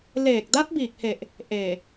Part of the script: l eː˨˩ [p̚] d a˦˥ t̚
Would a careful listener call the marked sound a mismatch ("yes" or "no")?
yes